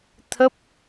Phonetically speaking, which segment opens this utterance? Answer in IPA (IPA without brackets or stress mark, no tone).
t̪ʰ